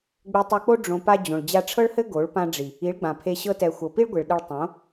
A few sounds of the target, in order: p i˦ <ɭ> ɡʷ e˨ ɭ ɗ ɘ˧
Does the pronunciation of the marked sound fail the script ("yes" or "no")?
no